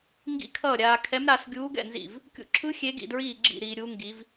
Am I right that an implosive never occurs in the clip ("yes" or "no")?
yes